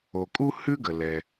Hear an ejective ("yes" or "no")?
yes